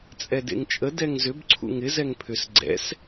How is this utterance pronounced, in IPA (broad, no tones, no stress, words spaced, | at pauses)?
t͡sʼɛdḛŋt͡ʃʼə dɛŋzʏb ǀʰṵŋɪ zɛŋpʰʏs ɡ͡ǀɛ̰s